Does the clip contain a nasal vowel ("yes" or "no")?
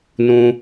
yes